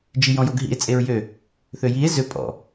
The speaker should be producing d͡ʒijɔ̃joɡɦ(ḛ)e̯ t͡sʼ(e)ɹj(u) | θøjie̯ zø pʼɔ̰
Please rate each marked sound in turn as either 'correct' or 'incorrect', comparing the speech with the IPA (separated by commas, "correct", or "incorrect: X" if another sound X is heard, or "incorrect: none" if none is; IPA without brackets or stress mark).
incorrect: ḭ, correct, incorrect: ø